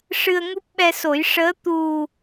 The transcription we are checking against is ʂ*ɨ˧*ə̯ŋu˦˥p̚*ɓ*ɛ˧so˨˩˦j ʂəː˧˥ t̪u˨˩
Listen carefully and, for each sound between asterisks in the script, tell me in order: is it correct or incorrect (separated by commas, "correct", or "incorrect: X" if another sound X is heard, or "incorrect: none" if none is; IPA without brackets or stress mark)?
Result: correct, correct